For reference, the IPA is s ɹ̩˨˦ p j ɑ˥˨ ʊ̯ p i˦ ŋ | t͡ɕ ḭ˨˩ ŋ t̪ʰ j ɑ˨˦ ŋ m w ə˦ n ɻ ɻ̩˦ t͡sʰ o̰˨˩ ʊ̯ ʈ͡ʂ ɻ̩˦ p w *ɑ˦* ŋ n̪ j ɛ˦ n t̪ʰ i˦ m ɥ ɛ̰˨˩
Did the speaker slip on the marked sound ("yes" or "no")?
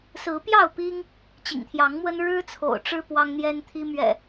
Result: no